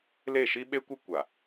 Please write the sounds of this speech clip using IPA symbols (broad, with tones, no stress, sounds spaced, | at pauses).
l e˦˨ ʃ i˦ ɓ e˦ kʷ ɪ˦ kʷ a˨